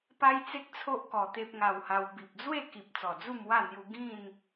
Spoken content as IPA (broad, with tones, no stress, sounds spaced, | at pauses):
p a˦ j t͡s e˦ k̚ t͡sʰ o˦ ʔ k ɔ˧ t̪ e˦ p̚ ŋ a˧ w h a˧ w b i˨ p̚ d͡z w e˥˧ k i˨ p̚ t͡s ɔ˨˩ d͡z u˥˧ m w a˥˧ n̪ j u˧ ɡ ĩ˥˧ n